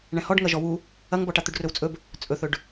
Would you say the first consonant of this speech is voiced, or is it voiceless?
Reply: voiced